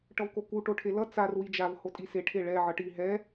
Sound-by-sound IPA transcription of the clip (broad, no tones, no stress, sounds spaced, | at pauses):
ʈ ʌ v k o k u ʈ o ʈʰ e l ʌ t͡s a r w i d͡ʒ a v h o tʼ i s e ʈʰ e ɭ ɛ ʕ ʌ ʈ i ɦ ɛ